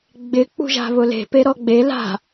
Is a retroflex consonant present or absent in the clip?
absent